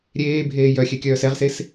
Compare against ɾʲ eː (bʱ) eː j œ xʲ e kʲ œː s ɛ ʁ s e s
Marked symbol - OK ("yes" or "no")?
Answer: yes